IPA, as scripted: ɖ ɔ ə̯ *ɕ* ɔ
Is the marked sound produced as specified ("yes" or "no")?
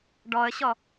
yes